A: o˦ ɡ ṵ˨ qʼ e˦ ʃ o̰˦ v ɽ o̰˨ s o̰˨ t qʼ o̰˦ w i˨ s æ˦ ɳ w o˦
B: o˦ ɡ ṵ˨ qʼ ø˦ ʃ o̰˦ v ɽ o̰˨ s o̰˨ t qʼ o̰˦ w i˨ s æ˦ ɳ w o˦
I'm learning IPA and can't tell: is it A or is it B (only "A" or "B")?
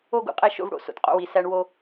A